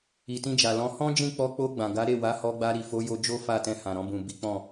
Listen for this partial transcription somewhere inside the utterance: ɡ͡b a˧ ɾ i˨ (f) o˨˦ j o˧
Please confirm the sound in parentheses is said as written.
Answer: yes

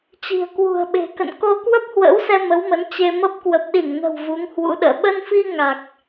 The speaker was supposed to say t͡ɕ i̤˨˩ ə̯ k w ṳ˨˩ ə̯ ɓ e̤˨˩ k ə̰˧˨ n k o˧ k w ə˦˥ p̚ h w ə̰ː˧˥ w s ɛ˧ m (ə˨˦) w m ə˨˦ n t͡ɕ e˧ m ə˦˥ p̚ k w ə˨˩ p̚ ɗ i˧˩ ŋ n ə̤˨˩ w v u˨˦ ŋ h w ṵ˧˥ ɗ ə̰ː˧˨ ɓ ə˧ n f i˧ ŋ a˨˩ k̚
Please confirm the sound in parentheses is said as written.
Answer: yes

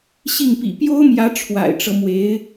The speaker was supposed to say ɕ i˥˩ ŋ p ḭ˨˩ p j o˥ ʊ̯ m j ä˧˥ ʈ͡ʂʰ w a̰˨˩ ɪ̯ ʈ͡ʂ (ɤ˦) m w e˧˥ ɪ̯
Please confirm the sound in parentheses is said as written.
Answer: yes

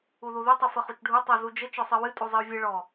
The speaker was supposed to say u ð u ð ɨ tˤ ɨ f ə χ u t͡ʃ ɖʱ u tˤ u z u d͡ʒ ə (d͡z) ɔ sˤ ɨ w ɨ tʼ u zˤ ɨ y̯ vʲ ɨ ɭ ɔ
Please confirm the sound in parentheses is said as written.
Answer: no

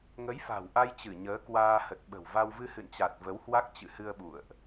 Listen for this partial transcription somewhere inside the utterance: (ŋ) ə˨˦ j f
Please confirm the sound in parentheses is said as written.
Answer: yes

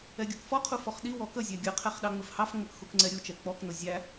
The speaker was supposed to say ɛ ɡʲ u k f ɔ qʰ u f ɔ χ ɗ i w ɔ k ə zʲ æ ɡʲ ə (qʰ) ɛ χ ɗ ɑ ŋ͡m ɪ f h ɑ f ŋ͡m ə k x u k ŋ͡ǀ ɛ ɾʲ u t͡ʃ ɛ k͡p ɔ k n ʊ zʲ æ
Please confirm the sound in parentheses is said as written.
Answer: yes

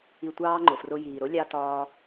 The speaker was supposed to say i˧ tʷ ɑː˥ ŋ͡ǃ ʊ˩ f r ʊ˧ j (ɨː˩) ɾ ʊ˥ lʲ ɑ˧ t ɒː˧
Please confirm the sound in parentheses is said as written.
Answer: no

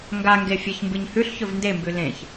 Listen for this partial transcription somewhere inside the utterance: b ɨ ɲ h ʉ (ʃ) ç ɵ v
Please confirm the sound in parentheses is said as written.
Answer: no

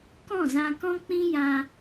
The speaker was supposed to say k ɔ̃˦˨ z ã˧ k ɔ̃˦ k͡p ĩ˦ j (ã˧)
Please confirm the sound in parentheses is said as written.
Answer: yes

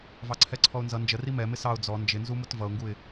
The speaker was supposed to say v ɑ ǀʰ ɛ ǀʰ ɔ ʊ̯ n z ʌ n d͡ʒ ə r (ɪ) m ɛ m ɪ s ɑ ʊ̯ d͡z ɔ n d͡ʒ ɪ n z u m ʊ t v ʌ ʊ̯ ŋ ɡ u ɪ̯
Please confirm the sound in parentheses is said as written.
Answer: no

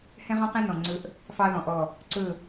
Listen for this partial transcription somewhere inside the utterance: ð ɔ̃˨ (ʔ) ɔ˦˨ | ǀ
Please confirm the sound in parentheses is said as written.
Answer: yes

